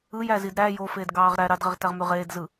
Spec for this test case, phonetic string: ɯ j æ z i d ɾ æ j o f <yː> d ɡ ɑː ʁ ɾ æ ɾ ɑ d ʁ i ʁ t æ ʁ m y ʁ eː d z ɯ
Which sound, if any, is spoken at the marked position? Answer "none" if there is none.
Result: eː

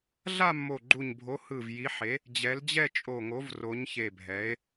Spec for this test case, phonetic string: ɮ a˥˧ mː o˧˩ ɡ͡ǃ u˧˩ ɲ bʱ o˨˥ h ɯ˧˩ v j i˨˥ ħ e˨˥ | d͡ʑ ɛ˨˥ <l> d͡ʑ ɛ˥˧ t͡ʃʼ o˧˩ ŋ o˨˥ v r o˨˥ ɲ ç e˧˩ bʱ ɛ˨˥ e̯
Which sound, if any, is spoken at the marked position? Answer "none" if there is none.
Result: l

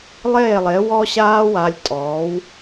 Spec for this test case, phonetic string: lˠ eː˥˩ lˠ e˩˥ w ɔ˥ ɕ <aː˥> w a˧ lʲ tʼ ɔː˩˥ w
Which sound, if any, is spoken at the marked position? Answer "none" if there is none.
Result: aː˥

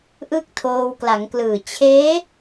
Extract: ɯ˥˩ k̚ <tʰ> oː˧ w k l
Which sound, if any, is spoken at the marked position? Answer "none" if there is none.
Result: tʰ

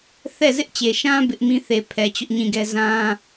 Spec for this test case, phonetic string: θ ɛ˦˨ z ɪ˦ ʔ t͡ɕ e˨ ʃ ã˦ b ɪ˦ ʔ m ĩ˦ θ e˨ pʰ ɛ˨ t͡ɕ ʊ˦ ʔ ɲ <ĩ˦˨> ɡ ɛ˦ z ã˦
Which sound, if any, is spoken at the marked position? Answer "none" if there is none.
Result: ĩ˦˨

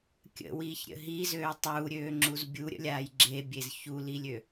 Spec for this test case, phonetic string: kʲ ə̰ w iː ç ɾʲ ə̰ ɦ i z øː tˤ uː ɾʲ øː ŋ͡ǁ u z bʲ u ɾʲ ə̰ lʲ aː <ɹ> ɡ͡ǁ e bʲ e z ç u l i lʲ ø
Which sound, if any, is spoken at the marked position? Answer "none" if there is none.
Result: j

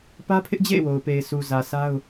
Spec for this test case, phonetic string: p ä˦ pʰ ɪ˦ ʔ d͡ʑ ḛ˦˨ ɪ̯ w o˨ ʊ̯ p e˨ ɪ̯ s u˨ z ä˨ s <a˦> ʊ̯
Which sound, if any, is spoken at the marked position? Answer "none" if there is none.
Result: a˦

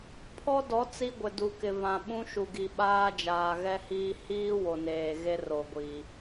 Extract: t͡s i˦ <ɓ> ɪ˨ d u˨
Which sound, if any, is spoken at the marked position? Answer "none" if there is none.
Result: ɡʷ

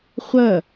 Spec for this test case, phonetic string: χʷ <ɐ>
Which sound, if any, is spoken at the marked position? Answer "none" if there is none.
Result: ɐ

